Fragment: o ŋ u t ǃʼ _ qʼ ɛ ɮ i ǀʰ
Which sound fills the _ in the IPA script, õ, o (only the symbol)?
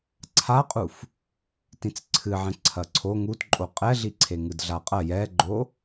o